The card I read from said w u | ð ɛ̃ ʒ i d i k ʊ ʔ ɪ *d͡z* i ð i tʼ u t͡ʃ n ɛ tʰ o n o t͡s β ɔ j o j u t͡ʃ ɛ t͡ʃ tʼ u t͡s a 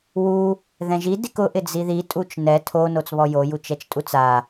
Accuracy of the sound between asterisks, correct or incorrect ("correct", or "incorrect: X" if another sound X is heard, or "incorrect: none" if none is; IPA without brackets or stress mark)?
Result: correct